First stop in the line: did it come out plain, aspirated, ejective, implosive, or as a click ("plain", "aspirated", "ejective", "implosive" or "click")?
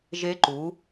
click